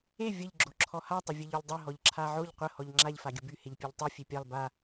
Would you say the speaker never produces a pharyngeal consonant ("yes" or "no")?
no